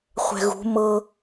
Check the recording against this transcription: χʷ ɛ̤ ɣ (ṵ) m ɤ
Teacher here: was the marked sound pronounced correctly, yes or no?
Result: no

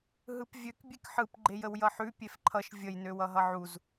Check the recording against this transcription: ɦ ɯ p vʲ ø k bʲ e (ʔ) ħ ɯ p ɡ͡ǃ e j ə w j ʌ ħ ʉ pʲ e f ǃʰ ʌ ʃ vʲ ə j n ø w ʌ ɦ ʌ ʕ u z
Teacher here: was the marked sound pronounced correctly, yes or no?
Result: no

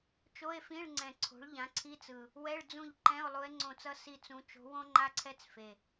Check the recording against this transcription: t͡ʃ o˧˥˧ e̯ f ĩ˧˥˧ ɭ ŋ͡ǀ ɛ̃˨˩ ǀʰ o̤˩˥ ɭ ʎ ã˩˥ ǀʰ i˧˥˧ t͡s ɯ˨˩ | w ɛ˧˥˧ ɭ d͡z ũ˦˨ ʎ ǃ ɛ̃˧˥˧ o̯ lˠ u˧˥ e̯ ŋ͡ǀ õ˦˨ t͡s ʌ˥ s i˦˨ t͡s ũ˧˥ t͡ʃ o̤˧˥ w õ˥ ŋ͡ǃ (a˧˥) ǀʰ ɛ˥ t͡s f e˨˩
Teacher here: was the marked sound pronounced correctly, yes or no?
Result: no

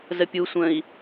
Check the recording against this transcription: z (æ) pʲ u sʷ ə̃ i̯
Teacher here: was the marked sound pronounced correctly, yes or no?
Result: no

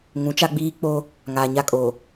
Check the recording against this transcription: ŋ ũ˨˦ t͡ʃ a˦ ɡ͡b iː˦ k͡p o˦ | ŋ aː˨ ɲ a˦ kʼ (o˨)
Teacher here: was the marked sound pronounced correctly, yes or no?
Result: yes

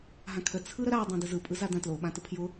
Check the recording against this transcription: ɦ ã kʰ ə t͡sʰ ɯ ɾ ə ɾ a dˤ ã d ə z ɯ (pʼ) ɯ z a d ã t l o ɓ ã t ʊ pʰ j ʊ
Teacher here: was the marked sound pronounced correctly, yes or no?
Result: yes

